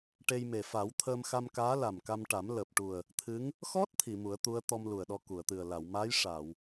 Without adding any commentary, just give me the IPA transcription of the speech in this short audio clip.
ʈ e˧ j m e˨˩ f a˨˩˦ w t̪ʰ əː˧ m x a˧ m k aː˧˥ l a˨˩ m k a˧ m ʈ a˨˩˦ m l əː˨˩ p̚ ʈ u˨˩ ə̯ | t̪ʰ ɨ˧˥ ŋ | x ɔ˦˥ t̚ t̪ʰ i˨˩˨ m u˨˩˦ ə̯ t̪ u˧˥ ə̯ t̪ ɔ˧ m l u˨˩ ə̯ ɗ ɔ˧ k u˨˩˨ ə̯ t̪ ɨ˨˩ ə̯ l a˨˩˨ w m a˧˥ j ʂ a˨˩˨ w

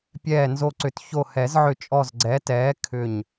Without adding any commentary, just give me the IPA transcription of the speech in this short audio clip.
pʲ ɛː˧˩ n z o˧˩ ǀ ʏ˨˩˦ t ç o˧˩ h ɛ˨˩˦ z ʕ ʏ˧˩ t͡ʃʼ ɔ˧˩ z ɡ͡ǀ ɛː˩˥ t ɛː˩˥ kʰ ʏ˧˩ ɲ

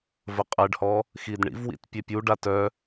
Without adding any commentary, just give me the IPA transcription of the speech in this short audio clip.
v ə qʼ ɛ ɖ h ɔ | x i d ɳ ḭ v w ḭ t pʲ ɛ pʲ u ɖ a t œ

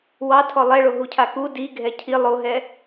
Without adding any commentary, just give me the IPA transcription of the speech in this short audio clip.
w ɑ tʰ ɔ lˠ ɛ ɭ o ɦ u cʰ a k u d i ɡʱ ɛ cʰ i lˠ o ɦ ɛ

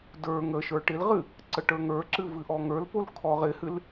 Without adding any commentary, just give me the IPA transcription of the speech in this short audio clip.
d ə˞ ŋ ə ʃ ə˞ ʈ ɪ l ʁ ɨ | ǀ ə ʈ ə˞ ŋ ə˞ ǁ ɨ v ɨ ʔ ɔ ŋ ə˞ l p o l kʰ ɔ ʁ ɪ h ɨ l

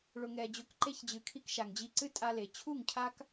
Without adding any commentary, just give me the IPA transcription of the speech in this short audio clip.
ɭ ʊ˨ ŋ ɛ˨ d͡ʑ ʊ˨˦ k ǃ e˧ ç d͡ʑ ɨ˨ kʰ i˧ k ʃ a˨ ŋ d͡ʑ i˧ ǀ ɨ˦ tʼ a˧ l e˨ t͡ɕʰ u˦˨ ŋ cʰ a˦ k

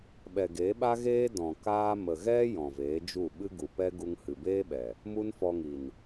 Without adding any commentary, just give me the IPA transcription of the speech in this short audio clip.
ɓ ɛ˨ ɡ e˨˦ ɓ a˦ ɣ eː˦ d ɔ̃˨ k aː˦ m ə˨ ɣ ɛ˦ j ɔ̃˨ v eː˨˦ d͡ʒ u˦˨ ɓ ɨ˦ ɡ u˨ p ɛ˦ ɡ u˧ ŋ h ɨ˨ b eː˦ ɓ ɛ˨ | m u˦ n f ɔ˧ ŋ i˨ n

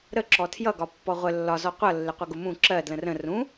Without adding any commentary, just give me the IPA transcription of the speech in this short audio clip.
ɾ ə ǁ ɔ tʰ j ʌ ɡ ɒ pː ɔ ʁʷ ə lː ɒ z ɔ qʷ ʌ lː ɪ qʷ ʌ ɡ ʊ m ũ ǁ ɜ d l ə̃ r ə̃ r ũ

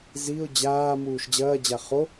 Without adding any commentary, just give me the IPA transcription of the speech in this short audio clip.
z i ʊ̯ d͡ʑ aː m uː ʃ d͡ʑ ɐː d͡ʑ a χ o

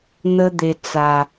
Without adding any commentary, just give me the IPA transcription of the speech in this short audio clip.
n̪ ə˧ d̪ e˨ t͡s a˨

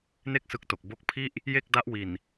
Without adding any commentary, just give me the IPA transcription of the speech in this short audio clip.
n e˥˩ k̚ s ɯ˦˥ k̚ t o˨˩ k̚ b o˦˥ k̚ pʰ i˥˩ ʔ | j e˥˩ k̚ d a˦˥ ʔ w i˨˩ n

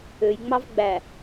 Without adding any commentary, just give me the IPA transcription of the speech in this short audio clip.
ø j ŋ͡m ɑ v ɡ͡b æ

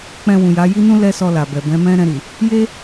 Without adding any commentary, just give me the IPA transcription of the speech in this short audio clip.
k͡p ɛ̃˧ w ũ˨ j a˨˦ j i˦ n ũ˦ l ɛ˦ s ɔ˧ l a˨ b ɛ˨ b ɛ̃˨˦ m ɛ̃˦ ɾ ɛ̃˧ ɾ i˨ | j e˦

